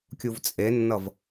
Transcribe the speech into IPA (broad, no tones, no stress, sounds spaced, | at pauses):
kʲ u v t͡sʼ e nː ʌ v